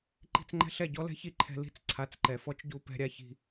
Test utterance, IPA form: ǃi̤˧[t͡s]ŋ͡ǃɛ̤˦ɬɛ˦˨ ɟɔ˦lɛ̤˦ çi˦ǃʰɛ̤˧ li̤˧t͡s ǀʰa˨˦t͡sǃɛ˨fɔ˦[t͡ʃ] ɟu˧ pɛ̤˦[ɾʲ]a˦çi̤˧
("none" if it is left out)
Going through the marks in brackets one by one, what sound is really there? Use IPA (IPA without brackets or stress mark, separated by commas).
t͡s, t͡ʃ, ɾʲ